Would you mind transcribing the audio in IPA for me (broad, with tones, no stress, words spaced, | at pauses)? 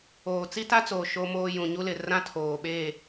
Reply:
oː˨ t͡si˦ta˦t͡soː˨ ʃo˦moː˦ jũ˨ɲu˦lɪ˨ rã˦tʰoː˨ɓe˦˨